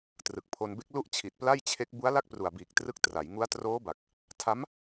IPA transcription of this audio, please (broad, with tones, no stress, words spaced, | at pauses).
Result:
trɯ˨˩k̚pʰo˧nbe˦˥k̚ lu˥˩ʔt͡ɕʰi˨˩t̚ pla˥˩jt͡ɕʰe˦˥k̚ bu˦˥a̯la˥˩k̚ pru˨˩a̯biː˨˩k̚trɯ˦˥k̚ tra˩˦jŋu˦˥a̯ troː˦˥ba˨˩k̚ | tʰa˦˥m